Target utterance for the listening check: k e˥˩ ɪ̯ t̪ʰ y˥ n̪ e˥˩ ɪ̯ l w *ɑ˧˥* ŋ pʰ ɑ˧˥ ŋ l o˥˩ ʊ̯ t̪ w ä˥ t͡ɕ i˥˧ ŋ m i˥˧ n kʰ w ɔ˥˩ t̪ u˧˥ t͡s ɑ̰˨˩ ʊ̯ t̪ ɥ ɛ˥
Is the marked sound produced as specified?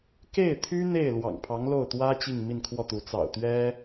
no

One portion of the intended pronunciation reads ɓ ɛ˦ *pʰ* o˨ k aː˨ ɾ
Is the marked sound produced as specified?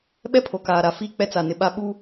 yes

